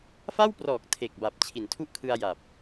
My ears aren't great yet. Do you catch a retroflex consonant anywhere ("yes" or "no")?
no